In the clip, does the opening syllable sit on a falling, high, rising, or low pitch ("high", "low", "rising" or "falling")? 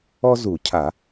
high